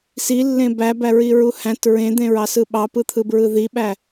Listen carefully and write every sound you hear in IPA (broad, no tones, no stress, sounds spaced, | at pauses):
s i lː ẽ b æ b æ ɹ i ɹ u h æ̃ t ɹ ẽ d̪ ẽ ɹ ɑ s ɯ ɓ ɑ p ɯ t̪ʰ ɯ b ɹ ɯ ð i ɓ æ